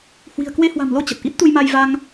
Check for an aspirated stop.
absent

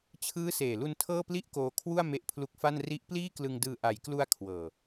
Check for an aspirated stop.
present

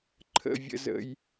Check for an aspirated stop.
present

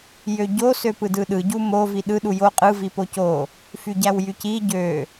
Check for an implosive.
present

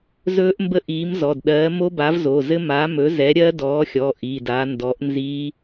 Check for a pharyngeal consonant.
absent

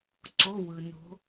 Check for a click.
present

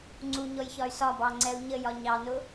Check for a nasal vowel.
absent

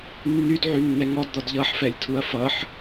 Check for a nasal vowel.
absent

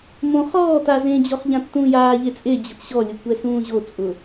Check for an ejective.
present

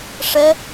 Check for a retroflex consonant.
present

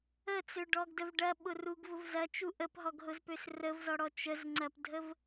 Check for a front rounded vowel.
present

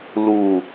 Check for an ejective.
absent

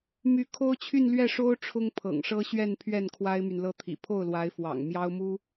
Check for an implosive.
absent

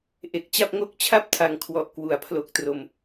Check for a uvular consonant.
absent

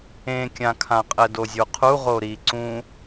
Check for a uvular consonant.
present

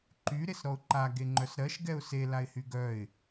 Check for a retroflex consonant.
absent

